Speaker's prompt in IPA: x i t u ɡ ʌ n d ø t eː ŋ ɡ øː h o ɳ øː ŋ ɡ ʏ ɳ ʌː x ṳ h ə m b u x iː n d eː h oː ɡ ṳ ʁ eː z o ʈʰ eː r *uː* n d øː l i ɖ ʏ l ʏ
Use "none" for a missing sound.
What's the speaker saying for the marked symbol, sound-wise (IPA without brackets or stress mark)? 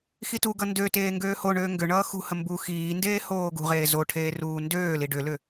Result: uː